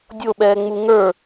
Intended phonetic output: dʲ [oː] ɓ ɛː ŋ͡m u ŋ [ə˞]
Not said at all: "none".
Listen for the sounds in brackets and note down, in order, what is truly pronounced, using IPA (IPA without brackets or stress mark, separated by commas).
o, ə˞